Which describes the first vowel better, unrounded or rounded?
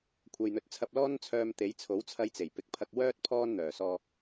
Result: unrounded